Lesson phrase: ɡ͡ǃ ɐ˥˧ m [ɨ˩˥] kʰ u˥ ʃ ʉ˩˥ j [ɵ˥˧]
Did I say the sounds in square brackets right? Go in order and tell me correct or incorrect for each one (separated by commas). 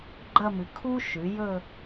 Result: correct, correct